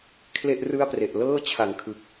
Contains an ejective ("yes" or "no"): no